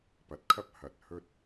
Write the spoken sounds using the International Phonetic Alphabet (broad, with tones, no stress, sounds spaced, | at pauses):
p ɐ˨ t̚ kʰ ɐ˥ p̚ h ɐ˨ t̚ h ɵ˧ t̚